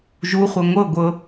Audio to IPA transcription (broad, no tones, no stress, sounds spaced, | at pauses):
ʒ u χʷ ɤ ŋʷ ɤ ɡʷ ɤ